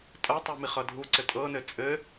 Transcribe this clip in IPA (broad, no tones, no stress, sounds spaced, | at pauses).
tʼ ɜ tˤ u m i χ ʌ dʱ u ǀ ɘ tʼ ɤ n ɘ t͡sʼ ɘ